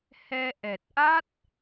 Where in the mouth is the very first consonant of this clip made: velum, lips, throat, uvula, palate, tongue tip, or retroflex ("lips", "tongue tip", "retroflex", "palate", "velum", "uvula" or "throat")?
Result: throat